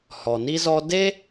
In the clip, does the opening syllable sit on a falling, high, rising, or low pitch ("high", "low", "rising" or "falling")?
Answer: low